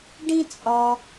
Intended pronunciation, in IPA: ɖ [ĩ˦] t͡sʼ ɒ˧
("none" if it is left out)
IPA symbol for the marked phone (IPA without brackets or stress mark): ĩ˦